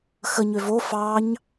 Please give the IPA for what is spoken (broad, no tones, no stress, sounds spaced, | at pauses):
x ə ɲ ø v o f ɑ ɲ